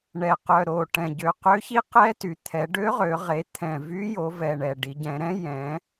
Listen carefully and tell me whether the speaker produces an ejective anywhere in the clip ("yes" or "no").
no